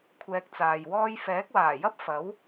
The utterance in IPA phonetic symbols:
kʷʰɛː˧k̚t͡saː˨jwɔː˥j fɛː˨˥k̚waː˨˩jɐ˥p̚ fɐ˨˥w

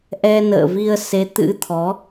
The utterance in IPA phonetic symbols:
ʔɛ˧nə̰ː˧˨vi˧ə̯ se˨˦t̪ɨ̰˧˥t̪ʰɔ˨˦

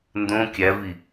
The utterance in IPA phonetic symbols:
ndõ kʲævi

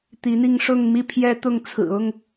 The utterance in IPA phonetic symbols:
t̪i˨˦n̪i˧ŋ ʂʊ˥˨ŋmi˦ pʰjɛ˦t̪ʊ˥˨ŋ t͡sʰɹ̩˨˩ʊ˥˨ŋ

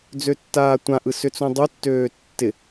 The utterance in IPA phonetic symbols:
d͡zøtːaːtʷãʔɯ sʏt͡sũdˤutːøː tːɪ

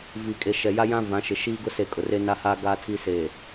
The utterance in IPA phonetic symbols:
vi˨kʼe˨ ʃɛ˨ja˦jã˦ vã˨˦ʃɪ˨ ʃiː˦ɡʊ˦se˨ kʼʊ˨re˦na˦haː˦ ɡaː˦tʰi˦ se˨

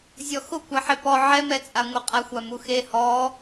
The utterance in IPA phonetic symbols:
zʲɔxʊkʷaħe pɔ ʕɛmɛt͡sʼaŋʷe qʼaxʷamuxe hɔ

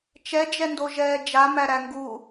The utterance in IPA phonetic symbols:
t͡ʃɛd͡ʒɛ ndoʒɛːd͡ʒamæ ɾæŋɡu

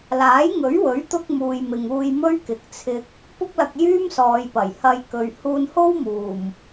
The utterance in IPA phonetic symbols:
laː˨˥jŋɵ˨˥ɥwɵ˨˥ɥt̪ʊ˧k̚ muː˨jmɪ˨ŋuː˧jmɵ˥ɥ kɪ˨˥k̚t͡sʰɪ˧k̚ | pʊ˥k̚lɐ˧k̚ jyː˥msɔː˨˧jpɐ˨˩j hɐ˧jkɵ˨ɥ huː˧nho˥wmuː˨˩m

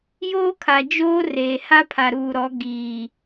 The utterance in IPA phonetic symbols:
joː˦kʰa˨ d͡ʒoː˦ reː˨ha˦pʰa˨ ɾuː˨ɾɔ˨˦ ɡiː˨

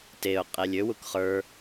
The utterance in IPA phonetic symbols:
teʊ̯ qʼelʲøwuk χə˞

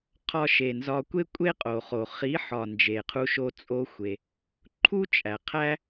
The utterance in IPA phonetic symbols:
qʰɒ˧ʃe˨nzɒ˧ kʷe˦kʷʼe˦qʼo˨χo˨ χi˨˦ħɒ˨ nd͡ʒe˨qʰu˧ʃo˧ t͡sʼo˦xʷe˧ | ǃʰu˦t͡ʃʼæ˨qʰæ˦

